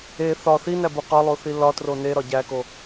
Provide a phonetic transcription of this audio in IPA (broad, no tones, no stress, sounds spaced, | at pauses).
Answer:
e θ ɒ θ i n æ b u q ɒ lˠ o θ i l ɒ t r o n e ɾ ɒ ɟ æ k o